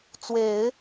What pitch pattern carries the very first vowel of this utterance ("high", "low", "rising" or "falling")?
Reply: rising